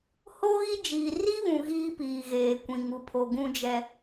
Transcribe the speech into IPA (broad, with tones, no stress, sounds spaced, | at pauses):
h o˦ ɣ i˦ d͡ʒ iː˨ r i˦ β ũ˨ ɣ iː˦ p iː˨ ɣ eː˨ kʷ ĩ˨ ŋ u˨ pʰ o˨ ɡ ũ˦ d͡ʒ ɛ˦